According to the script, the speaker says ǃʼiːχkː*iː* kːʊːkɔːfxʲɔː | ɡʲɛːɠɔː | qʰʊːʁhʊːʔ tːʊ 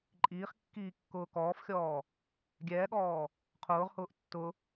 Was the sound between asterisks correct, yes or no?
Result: yes